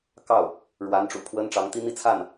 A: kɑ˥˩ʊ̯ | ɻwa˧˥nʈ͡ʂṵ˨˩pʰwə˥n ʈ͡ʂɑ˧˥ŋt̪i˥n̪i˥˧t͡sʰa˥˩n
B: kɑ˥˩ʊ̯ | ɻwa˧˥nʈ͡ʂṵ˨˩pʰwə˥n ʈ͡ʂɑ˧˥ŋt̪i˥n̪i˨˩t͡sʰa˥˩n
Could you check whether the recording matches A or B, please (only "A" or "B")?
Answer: A